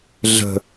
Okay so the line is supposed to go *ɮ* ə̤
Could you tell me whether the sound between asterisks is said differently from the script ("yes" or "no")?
no